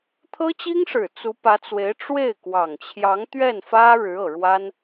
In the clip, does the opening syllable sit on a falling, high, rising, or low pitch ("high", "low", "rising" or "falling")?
high